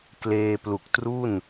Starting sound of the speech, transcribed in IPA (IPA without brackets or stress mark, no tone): k